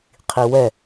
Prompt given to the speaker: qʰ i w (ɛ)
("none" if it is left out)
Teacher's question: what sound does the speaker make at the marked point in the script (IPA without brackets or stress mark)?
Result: ɛ